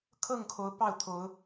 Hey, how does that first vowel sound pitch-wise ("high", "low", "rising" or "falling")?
falling